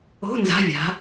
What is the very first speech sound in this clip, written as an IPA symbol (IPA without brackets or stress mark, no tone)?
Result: o̤